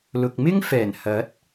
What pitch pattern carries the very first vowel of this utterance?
low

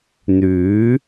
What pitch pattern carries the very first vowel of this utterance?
rising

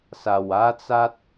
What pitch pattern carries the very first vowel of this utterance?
low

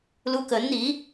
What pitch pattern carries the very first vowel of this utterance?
high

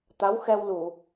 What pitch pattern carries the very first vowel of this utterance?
rising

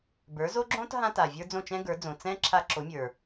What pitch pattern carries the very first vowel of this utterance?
rising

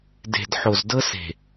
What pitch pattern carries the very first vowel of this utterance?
low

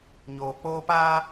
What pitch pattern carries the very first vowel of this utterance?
low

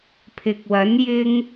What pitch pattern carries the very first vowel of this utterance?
low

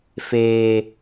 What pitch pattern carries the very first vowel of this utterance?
high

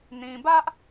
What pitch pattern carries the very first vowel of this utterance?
low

